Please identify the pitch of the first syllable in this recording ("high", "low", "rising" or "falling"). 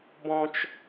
high